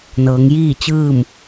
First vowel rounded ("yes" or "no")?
no